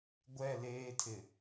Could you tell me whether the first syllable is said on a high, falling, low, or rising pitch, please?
falling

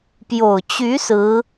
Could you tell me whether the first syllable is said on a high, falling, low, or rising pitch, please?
low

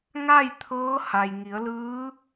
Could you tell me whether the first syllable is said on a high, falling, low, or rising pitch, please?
falling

